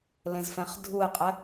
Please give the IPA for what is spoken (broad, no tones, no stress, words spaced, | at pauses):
lẽzfɛ̃χdʱue̯qʼɛ